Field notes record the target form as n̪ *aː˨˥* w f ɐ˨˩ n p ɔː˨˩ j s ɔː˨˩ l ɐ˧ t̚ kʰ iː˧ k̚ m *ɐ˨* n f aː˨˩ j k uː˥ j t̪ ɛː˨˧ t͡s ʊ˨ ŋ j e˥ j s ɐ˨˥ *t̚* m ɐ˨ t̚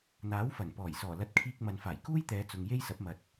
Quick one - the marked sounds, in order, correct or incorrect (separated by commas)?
correct, correct, incorrect